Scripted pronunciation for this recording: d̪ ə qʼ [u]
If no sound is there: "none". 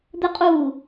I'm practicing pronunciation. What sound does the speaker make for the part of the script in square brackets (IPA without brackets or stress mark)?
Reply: uː